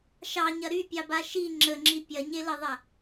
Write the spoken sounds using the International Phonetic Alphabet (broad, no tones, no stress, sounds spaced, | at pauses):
ʃ ɑ ɲ ɐ ɾ y pʲ ɑ b a ʃ i ŋ͡ǁ ə ŋ͡ǁ i pʲ ɐ ɲ e l ə ðˤ ɐ